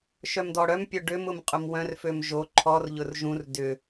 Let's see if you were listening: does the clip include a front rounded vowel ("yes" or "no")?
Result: yes